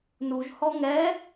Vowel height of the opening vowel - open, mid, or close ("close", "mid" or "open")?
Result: close